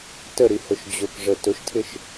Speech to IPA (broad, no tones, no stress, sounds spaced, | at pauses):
t ə ɾ i h ʊ ʃ d͡ʑ ʊ k ʐ ə t ʊ ʃ tʰ ɪ ʃ